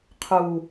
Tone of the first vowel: low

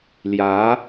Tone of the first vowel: rising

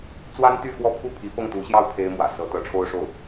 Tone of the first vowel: high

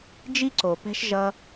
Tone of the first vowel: high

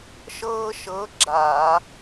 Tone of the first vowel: high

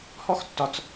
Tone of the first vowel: high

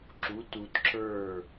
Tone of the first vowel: rising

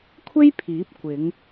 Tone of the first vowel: high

